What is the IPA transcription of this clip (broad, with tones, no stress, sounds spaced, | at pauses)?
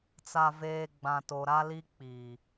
t͡s a˨ v eː˨ ɡ͡b ã˨ t o˨ ɾ a˦ l i˦ k͡p iː˨